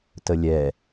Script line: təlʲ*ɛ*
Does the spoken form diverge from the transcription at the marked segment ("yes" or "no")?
no